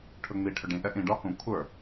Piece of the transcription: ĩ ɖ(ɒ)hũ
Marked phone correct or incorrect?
correct